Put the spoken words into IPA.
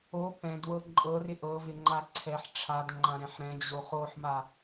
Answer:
o p ɛ̃ d w ɤ ǃʼ ɤ r ɪ ʔ ɤ v ɪ ŋ͡ǃ a ǀʰ ɛ ħ ʈ͡ʂʰ a d ŋ͡ǃ ã ɾ ɛ̃ ħ ɾ ɛ̃ d͡ʑ o χ o ħ m a

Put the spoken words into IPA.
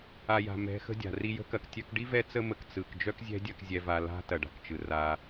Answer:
a˨ j a̤˨ m ɛ̤˨˦ x ə̤˧ dʲ a̤˨ r i˧ j ə̤˦ k ɐ˧ k tʲ œ˧ k ɖ i˦ v ɛ˦ t͡s ə˦ m ə˧ k t͡s ɯ˨ k d͡ʒ œ˦ k zʲ ɛ̤˦ dʲ ɐ˧ k zʲ ɛ˧ v a˧ l a̤˦ t ɐ˨ ɖ a̤˨ k t͡ʃ ɯ˨ r a˧

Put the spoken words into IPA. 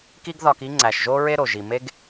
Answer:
k i˥ ɡ ð ɒ˧ k i˥ ŋ͡ǀ æ˩ ʃ ʒ o˥ ɹ e˥ ɾ o˩ ʒ i˩ m e˥ ɡ

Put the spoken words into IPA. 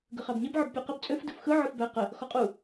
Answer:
ɡ ə χ a b ɲ e b ʕ ə b pʲ ɔ q ə b t͡sʼ ø f d ɯ f x ɯ ʕ ɯ f b æ q ə | x ɔ qʼ u

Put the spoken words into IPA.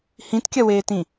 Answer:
h ĩ t kʲ ɐ w eː t ĩ

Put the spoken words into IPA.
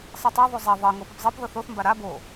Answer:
sˤ ɯ tˤ a ðˤ u zˤ ɛ ðˤ ɤ ŋ o p ɯ p zˤ ɤ p ð ɤ θ o θ m b a ɾ a b o

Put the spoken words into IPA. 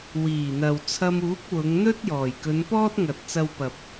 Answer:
w iː˨˩ n̪ ɐ˨ w t͡sʰ ɐ˧ m uː˨˥ k̚ w ʊ˨˧ ŋ n̪ ɵ˥ t̚ j ɔː˨˩ j k ɵ˨˧ n p ɔː˥ t̚ ŋ ɐ˨ t̚ t͡s ɐ˧ w p ɐ˨ p̚

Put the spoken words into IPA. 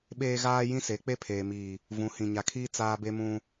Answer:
ɓ eː˦ ɣ aː˦ j ĩ˦ s e˨˦ k͡p e˦ pʰ eː˨ m iː˨ | v ũ˨˦ h ĩ˨ ɲ a˨ kʰ iː˦ t͡s aː˦ b e˦ m ũ˦

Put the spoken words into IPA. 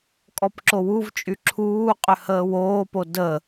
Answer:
kʼ ɔ p ǁ o w u v t͡ʃʼ y ǁʰ uː qʼ ʏ h əː w oː p o d ə

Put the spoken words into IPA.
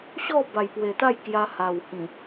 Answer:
ɕ ɔ˥˧ b a˨˩ j p w e˨˩ t̪ a˥˧ j k j a˧ h a˨˩ w h ĩ˨˩

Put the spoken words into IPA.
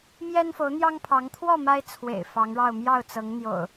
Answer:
m j ɛ˦ n f o˨˦ ʊ̯ n̪ j ɑ˦ ŋ pʰ ɑ˨˦ ŋ t̪ʰ w ɔ˥˨ m a˦ ɪ̯ t͡sʰ w ḛ˨˩ ɪ̯ f ɑ˨˦ ŋ ɻ ɑ˥˨ ʊ̯ m j ɑ˥˨ ʊ̯ t͡s ɤ˨˦ ŋ n̪ j o̰˨˩ ʊ̯

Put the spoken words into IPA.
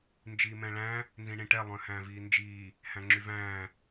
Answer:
n d͡ʒ iː m ɛ̃ ɭ æ̃ | n z ĩ ɳ ĩ ʈ ɛ lˠ œ̃ h æ̃ː v iː n d͡ʒ iː | h æ̃ ŋ͡ǁ y v æ̃ː

